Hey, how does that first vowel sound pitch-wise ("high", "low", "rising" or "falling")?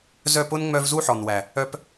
falling